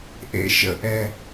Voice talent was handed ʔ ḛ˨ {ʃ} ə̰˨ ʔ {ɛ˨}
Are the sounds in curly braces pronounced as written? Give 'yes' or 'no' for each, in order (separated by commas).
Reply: yes, yes